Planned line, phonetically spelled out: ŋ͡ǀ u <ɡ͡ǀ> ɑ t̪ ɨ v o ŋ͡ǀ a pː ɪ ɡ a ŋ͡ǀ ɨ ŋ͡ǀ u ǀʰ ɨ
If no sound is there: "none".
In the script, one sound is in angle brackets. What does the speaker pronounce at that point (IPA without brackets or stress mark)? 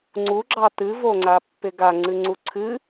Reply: ɡ͡ǁ